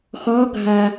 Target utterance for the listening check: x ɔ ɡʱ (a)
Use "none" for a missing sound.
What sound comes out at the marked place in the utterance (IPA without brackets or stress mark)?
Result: a